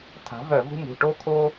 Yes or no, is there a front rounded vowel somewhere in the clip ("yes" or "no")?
yes